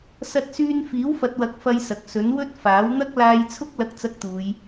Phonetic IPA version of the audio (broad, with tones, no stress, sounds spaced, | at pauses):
s ɐ˥ t̚ s yː˥ n f iː˨˥ w f ɐ˨ t̚ w ɐ˨˥ k̚ f ɐ˥ j s ɐ˨ k̚ s ɵ˨˥ n w ɵ˥ t̚ f aː˨˥ w n̪ ɐ˥ k̚ l aː˧ j t͡sʰ ʊ˥ k̚ l ɐ˥ k̚ t͡s ɐ˥ k̚ t̪ uː˨˧ j